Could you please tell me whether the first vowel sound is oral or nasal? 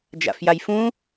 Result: oral